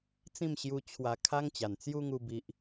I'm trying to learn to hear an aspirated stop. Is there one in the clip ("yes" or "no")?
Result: yes